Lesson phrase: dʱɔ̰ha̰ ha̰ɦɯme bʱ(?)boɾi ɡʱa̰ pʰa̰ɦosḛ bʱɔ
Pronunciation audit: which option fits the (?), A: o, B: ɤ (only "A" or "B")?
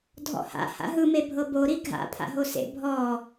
B